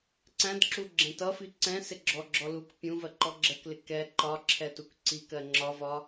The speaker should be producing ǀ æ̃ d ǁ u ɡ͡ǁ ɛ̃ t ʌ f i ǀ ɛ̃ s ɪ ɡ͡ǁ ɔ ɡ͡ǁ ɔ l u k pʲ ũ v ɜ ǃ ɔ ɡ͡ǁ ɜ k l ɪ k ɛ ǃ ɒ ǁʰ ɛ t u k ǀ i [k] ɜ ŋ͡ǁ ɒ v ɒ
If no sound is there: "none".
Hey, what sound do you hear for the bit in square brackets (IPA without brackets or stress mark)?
k